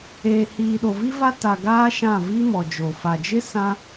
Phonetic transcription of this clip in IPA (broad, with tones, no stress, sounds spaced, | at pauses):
eː˨ h iː˨ ɗ o˨ v i˦ v a˦ t a˨ ɡ aː˦ ʃ ã˦˨ v i˦ m ɔ˨ d͡ʒ o˨ f a˨ d͡ʒ ɪ˦ s ã˦